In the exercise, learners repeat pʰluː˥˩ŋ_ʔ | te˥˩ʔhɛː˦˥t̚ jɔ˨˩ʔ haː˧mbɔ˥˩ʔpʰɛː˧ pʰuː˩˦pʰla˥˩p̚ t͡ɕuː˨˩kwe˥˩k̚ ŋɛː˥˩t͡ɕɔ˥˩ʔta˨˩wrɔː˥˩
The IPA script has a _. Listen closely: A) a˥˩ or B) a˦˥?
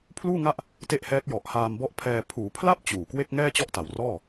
A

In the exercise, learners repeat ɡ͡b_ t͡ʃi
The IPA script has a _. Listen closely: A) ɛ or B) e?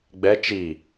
A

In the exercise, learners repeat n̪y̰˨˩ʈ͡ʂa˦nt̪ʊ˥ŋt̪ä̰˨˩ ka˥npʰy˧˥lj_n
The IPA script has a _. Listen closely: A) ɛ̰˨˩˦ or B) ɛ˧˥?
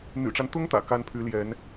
B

